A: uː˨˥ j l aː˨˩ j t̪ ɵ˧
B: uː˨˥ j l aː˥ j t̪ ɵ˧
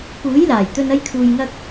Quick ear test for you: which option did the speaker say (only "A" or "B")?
A